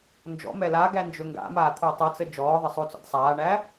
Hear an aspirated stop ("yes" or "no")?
yes